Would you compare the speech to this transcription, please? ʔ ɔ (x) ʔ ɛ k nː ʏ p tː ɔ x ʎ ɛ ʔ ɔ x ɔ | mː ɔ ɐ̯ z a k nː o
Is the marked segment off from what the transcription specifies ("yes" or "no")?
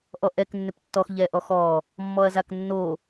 yes